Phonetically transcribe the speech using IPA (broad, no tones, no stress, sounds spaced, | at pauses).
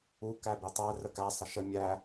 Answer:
u k æ b i tˤ æ r ə k æ sˤ ə ʃ ə mʲ æ